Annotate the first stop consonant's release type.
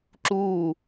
click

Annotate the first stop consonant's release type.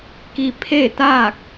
plain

